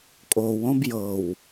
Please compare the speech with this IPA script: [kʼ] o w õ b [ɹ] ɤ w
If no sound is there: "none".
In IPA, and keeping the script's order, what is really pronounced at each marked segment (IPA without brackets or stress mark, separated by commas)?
kʼ, j